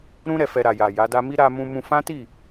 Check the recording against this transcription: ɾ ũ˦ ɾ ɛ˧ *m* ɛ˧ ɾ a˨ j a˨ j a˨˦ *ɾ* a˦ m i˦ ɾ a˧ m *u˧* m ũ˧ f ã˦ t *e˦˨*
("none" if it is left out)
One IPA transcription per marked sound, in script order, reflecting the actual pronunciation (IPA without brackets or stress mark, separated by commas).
f, d, ũ˧, i˦˨